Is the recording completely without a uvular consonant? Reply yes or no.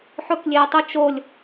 yes